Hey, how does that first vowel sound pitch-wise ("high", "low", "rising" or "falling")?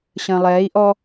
low